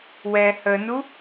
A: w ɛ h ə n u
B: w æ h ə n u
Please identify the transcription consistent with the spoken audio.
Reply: A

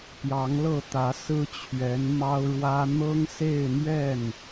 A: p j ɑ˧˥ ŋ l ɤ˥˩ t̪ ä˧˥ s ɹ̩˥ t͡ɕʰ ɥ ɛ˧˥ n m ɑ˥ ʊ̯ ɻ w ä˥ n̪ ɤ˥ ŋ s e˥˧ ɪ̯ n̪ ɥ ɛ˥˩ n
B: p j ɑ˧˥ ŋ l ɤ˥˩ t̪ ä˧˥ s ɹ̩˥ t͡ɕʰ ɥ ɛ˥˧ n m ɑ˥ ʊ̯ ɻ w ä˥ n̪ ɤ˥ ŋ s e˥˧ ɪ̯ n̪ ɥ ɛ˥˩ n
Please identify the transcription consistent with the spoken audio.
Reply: A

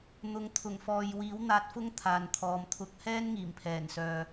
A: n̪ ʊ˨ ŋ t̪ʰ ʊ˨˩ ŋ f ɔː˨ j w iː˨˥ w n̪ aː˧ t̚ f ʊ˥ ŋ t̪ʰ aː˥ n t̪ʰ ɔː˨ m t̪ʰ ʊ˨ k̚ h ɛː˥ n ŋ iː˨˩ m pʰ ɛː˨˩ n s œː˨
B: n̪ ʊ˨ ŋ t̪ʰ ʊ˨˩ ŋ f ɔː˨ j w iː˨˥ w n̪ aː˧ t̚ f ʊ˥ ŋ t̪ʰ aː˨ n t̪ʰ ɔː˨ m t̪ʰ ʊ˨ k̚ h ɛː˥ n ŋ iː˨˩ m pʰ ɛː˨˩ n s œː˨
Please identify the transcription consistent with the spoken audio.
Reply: B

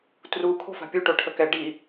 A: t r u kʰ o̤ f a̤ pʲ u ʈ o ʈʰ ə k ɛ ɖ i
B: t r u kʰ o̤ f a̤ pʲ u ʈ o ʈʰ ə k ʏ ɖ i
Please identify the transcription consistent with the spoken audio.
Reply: A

